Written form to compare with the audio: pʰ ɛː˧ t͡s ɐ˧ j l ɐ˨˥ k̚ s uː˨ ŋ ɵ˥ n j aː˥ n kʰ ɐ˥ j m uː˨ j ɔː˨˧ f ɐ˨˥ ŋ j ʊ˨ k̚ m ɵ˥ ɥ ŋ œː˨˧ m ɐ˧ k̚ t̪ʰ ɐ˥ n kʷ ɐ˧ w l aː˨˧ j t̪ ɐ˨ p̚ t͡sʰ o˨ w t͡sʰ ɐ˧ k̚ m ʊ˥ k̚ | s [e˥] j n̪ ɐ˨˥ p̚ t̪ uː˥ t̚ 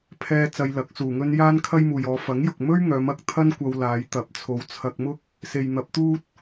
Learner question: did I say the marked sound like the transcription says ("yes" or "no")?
no